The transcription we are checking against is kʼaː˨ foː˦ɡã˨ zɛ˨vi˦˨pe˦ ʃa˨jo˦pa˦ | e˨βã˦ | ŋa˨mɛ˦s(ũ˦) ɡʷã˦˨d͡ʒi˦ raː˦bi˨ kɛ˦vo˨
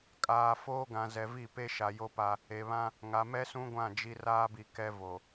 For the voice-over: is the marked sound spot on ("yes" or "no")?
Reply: yes